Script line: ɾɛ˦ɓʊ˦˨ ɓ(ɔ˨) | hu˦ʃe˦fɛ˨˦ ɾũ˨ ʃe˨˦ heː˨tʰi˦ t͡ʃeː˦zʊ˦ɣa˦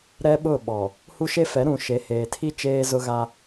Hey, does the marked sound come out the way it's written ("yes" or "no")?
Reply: yes